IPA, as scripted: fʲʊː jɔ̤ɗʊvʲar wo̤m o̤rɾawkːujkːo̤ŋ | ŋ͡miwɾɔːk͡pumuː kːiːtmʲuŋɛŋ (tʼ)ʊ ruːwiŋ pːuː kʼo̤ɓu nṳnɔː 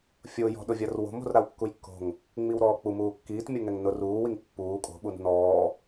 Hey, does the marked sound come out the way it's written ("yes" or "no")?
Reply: no